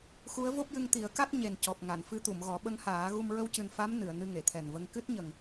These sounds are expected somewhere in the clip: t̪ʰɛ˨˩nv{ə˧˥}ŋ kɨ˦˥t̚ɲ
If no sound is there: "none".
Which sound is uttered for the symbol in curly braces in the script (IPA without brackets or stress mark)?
ə˧